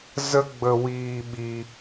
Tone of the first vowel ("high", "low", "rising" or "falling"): high